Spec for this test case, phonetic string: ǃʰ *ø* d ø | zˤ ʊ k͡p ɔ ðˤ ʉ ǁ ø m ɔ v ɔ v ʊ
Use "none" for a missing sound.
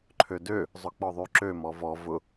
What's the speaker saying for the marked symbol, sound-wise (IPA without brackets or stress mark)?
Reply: ø